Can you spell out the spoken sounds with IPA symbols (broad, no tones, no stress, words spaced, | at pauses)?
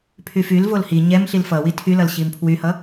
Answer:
pʰyfylvol hi ɲɛm ɬilfʌwi tʰylʌl ɕimpʰwyhʌ